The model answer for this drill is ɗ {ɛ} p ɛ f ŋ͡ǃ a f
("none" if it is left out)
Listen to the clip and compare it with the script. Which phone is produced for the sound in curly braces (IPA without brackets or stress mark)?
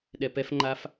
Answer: ɛ